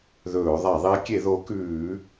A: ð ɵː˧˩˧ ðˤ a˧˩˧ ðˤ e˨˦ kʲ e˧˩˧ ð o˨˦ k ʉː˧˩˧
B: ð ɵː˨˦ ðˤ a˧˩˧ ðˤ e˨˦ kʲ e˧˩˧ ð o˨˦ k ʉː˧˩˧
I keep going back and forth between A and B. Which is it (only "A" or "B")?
A